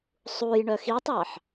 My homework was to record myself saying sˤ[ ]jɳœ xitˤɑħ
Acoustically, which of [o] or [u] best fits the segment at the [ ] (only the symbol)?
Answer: u